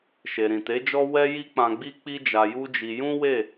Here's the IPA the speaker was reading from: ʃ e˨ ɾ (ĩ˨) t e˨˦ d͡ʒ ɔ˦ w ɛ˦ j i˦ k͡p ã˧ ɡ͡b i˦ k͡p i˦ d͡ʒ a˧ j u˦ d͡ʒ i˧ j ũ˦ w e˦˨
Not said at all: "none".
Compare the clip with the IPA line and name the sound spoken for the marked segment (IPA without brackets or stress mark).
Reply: ĩ˨